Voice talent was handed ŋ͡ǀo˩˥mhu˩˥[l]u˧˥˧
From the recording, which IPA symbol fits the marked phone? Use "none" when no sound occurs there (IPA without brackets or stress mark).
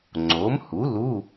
l